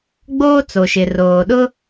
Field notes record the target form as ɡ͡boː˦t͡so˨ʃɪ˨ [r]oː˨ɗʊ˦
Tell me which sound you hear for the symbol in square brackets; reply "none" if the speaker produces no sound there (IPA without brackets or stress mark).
r